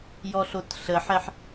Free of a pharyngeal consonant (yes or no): no